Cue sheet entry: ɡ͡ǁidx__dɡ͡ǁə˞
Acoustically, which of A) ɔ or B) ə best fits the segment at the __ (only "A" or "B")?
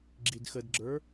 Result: B